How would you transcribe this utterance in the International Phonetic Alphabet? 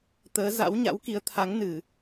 t̪əː˨˦ za̰˧˥wɲa̰˧˥w ki˨˦ə̯t̪ʰa˨˦ŋ nɨ˧˩˨

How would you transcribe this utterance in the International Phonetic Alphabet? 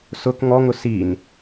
sʊk ŋɔŋʊ sin

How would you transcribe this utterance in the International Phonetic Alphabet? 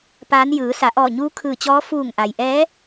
paː˧˥n jɯː˩˧ sa˩˧ʔɔː˧˩ɲuː˧˥ kʰɯː˧˩t͡ɕɔː˧˥ fuː˧˩ŋʔa˩j ʔɛː˧˥

